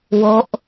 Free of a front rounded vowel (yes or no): yes